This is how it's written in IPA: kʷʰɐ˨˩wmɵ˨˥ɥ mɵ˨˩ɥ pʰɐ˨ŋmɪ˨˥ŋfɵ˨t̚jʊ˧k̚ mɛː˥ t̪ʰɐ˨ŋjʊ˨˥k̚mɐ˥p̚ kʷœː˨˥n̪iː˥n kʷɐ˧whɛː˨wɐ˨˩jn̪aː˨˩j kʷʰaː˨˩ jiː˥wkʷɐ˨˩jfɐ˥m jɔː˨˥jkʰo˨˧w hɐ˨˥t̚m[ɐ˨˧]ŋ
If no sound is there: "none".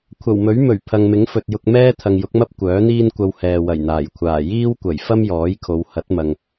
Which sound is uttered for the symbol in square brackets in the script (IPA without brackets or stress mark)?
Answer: ɐ˨